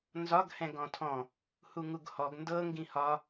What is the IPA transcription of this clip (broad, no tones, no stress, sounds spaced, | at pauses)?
n z ɒ ɡ h ɛ̃ ɡ ɔ̃ tʰ ɔ̃ | h u ŋ u ɡ h ɔ ɡ n d ɤ ŋ ɡ ĩ h ɒ